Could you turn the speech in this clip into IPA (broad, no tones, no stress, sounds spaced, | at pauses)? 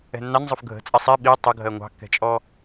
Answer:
ɛ̤ nː ɑ n zˤ ʊ f ɡʱ ə̤ t͡sʼ ɛ sˤ i ɓ i tˤ ʊ ɡʱ ɜ ŋʷ ɑ̤ kː ɛ̤ t͡ʃʼ ɔ